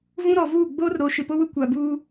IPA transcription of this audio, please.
v ũ˦ ɾ ɔ˨ v uː˦˨ ɡ͡b oː˦ r ɾ o˨ ʃ ɪ˨ p o˦ w ʊ˦ kʷ a˨ b uː˦

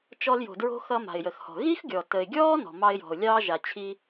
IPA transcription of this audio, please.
t͡ʃ ɔ˧ l j o̤˩ d ɹ o̤˧ x ʌ˧ m a̤˩ ɪ̯ j ə˩ x h ɔ̤˩ ɣ i˥ x ɡʲ ɔ˩ t ə˩ ɪ̯ ɡʲ ɔː˥ n ɔ̤˩ m ɑ˧ ɪ̯ j ɔ̤˩ ʊ̯ lʲ ɑː˧ ʒ a˩ t͡ɕʰ i˧

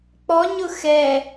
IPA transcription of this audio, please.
k͡p ɔ ɲ ʊ x ɛ

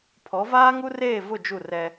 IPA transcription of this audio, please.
pʰ ɔ˨˦ v aː˦ ŋ u˦ r eː˦˨ v ʊ˦˨ d͡ʒ u˦˨ r ɛ˦

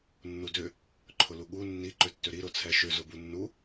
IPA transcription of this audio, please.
nː u d ʏ | ǃʰ ʊ l u ɠ u nː i ǃ ʏ tː ʏ ɾ i ɾ ʊ t͡sʰ ɛ ʃ ʏ z ʊ b u nː u

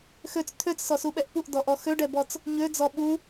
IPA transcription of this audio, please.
x ø t͡s t̪ʰ ø t͡s s ɔ s u ɓ ɛ ʔ p u ʔ d ɔ ʔ ɔ x ø ɖ ɛ b ɔ t͡s | ɲ ø d͡z ɔ ɓ u

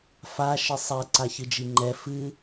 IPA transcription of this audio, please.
f a ʃ ɘ sˤ ɛ ǀ a ç ɨ d͡ʒ i ŋ͡ǃ ɛ f ɨ

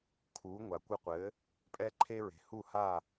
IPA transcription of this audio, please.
kʰ uː˩˥ ŋʷ a˩ kʷ ɨ˧ qʷ ɘː˩˥ | pʼ ɛ˥ ǃʰ e˥ ɹ e̤˩ h u˥˩ h a˥˩

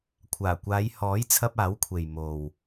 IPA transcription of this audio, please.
kʷʰ aː˨˩ kʷ aː˨˧ j h ɔː˨˥ j t͡sʰ ɐ˧ p̚ aː˨˥ w kʷʰ e˨ j m o˨ w

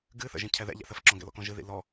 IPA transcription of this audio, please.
ɡ ɨ θ ə̰ ʒ ĩ cʰ ɛ ð ɛ̰ ʎ ɛ̰ θ ə f ǁ ɔ̃ ɡ ɛ̰ l ɔ̰ k ɔ̃ ʒ ɨ ð ḭ l ɔ

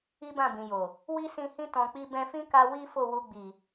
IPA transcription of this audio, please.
i˦ b ã˦˨ b ĩ˨ j o˨ | w i˦ s ĩ˧ h ĩ˦ t ɔ̃˧ k͡p i˦ b ɛ̃˧ f ĩ˦ k a˧ w i˦ f o˦˨ w u˧ ɡ͡b i˨

